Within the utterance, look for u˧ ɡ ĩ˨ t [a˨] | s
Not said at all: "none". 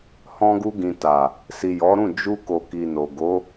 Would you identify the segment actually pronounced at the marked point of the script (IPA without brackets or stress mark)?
a˨